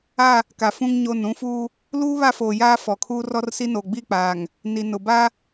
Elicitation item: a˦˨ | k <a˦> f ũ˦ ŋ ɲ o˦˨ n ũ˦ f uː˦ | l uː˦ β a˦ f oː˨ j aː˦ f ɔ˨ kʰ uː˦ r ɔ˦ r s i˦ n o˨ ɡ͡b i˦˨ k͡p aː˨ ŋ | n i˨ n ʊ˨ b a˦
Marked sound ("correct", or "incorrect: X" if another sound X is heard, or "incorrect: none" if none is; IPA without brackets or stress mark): incorrect: a˨